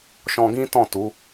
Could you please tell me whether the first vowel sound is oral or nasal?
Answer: nasal